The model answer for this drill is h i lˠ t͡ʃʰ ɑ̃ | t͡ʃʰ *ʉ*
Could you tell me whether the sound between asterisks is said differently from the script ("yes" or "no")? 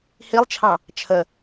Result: yes